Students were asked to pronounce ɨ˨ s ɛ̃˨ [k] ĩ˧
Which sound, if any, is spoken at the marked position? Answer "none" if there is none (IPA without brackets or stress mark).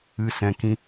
k